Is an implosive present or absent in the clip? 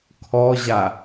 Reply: absent